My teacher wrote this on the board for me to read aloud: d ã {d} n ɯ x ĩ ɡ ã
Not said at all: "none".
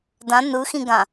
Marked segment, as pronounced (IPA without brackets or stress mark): none